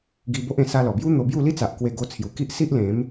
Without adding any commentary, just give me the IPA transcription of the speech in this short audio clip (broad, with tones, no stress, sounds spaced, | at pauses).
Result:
ɡ i˧ b o˦ ʔ ẽ˧ s a˧ l ɔ˨˩ b j u˦ n̪ o˧ b j u˥˧ l i˦ t͡s a˨ ʔ k w e˧ ɡ o˧ t͡sʰ j u˨˩ k i˦ ʔ s i˦ ʔ l ẽ˨˦ m